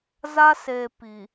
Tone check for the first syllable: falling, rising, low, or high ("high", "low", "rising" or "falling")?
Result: high